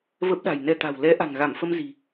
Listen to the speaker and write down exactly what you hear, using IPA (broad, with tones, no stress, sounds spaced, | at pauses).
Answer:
v ə˦˥ p̚ ɗ a̤˨˩ j n ɛ˧ t̪ a̤˨˩ w l ɛ˨˦ ʔ a̤˨˩ ŋ ɣ a˧˩ m f ə˧ m z i̤˨˩